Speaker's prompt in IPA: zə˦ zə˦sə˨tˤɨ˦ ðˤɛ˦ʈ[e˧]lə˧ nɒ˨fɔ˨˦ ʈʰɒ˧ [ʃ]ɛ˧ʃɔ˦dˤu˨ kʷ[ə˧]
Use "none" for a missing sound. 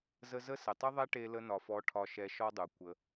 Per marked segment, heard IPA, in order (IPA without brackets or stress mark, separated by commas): e˧, ʃ, ə˧